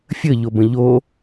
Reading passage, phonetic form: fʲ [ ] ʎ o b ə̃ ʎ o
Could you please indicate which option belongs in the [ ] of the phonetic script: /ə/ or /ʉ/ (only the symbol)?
ə